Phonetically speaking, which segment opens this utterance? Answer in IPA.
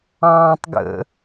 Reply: ɑ̃ː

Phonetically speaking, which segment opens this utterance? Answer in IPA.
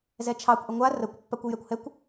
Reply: z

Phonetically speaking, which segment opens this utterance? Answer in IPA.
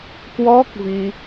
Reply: k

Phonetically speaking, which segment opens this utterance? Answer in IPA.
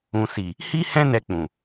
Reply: ũ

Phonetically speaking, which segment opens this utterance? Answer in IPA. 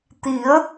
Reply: t̪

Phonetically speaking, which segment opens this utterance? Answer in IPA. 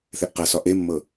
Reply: θ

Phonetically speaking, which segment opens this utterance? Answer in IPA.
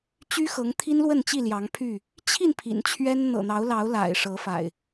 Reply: t͡ɕ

